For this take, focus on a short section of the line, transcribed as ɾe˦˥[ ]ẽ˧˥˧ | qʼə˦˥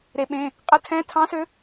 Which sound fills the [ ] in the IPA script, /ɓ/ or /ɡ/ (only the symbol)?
ɓ